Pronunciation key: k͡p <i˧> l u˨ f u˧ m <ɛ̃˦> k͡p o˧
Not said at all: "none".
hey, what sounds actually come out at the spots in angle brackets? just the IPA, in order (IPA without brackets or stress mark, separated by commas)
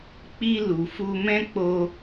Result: i˧, ɛ̃˦